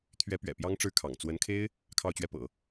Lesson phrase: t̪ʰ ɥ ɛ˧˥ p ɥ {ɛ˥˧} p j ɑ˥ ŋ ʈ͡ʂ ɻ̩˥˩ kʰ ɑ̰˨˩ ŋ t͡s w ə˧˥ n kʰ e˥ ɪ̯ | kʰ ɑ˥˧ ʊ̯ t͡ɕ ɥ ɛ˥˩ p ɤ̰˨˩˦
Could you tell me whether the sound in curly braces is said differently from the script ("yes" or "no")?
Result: yes